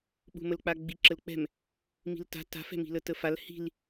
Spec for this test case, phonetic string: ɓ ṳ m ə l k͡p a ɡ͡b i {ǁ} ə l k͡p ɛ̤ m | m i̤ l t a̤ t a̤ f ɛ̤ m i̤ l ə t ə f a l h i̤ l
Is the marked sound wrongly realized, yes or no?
no